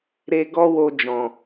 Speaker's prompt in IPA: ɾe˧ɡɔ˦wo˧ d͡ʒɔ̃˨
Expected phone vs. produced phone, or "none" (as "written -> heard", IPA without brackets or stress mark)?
none